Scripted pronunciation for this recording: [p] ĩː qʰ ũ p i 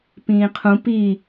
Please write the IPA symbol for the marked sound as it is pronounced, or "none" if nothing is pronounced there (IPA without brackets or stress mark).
p